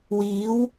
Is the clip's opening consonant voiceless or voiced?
voiced